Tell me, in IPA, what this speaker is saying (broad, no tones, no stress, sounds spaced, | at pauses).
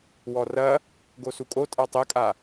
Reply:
w ɔ r ɐ | ɡ o s u kʼ o tʼ a tˤ ɛ kʼ a